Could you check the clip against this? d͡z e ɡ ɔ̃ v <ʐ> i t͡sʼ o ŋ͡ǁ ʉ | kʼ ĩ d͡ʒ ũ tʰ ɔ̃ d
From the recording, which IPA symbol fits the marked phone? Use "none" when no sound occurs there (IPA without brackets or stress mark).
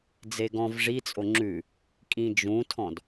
ʐ